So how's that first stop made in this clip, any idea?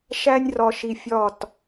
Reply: plain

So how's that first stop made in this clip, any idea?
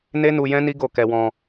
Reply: plain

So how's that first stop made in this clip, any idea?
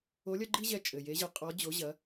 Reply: click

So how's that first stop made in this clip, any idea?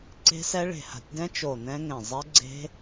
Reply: click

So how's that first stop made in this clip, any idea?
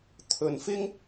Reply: aspirated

